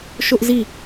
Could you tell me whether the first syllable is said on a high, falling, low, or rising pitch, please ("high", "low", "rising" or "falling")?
high